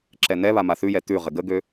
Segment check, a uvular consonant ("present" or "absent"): present